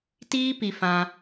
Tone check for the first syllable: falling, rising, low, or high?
high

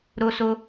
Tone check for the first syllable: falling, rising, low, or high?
high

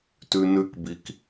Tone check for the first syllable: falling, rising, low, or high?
high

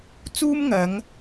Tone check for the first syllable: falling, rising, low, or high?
high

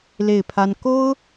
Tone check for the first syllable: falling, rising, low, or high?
falling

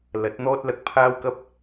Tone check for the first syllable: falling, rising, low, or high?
rising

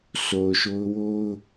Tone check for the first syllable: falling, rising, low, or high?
low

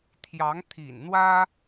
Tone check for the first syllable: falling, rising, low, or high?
rising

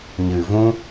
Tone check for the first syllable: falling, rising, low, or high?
low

